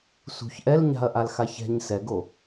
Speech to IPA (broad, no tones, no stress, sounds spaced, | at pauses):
s ṳ ç ʔ ɛ l ɲ a̤ ɐ̯ ʔ a l x a ç ɛ̤ ɲ s ɛ ɡ o